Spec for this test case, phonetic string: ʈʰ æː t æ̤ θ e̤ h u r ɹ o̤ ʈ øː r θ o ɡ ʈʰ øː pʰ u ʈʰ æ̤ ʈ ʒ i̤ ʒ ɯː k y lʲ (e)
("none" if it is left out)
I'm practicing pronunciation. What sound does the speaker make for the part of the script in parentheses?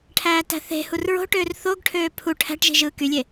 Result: e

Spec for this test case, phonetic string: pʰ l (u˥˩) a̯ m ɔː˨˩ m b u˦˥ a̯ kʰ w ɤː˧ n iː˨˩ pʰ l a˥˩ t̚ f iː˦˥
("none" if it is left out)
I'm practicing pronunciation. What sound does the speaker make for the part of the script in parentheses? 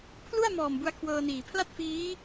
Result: u˥˩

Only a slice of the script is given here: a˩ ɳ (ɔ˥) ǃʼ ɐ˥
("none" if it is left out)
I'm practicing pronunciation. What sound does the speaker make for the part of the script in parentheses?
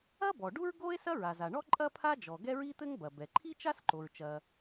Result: ɔ˥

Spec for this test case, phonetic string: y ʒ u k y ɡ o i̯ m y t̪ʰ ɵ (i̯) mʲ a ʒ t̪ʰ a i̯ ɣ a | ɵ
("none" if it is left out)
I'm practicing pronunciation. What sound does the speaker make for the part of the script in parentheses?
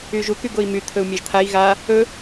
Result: u̯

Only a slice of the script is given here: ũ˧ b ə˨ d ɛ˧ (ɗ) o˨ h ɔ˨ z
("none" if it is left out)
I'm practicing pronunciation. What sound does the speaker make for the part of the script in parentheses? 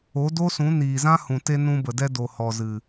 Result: d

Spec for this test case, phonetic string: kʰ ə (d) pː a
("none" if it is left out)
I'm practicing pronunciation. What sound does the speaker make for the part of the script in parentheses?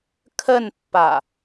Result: n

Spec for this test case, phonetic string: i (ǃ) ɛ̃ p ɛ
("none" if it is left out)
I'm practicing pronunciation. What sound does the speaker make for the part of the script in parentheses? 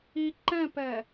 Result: ǃ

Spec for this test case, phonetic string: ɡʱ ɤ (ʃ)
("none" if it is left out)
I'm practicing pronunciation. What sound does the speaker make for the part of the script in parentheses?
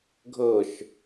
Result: ʃ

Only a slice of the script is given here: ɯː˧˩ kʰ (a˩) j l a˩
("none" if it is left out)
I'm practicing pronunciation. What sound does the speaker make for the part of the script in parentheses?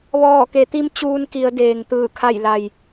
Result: a˧˩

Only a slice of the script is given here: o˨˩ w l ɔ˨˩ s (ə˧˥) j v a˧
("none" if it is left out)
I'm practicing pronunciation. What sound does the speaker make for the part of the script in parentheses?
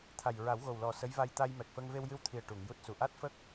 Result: ə˧˥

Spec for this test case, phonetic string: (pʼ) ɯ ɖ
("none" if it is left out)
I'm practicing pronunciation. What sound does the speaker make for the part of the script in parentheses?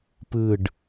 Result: p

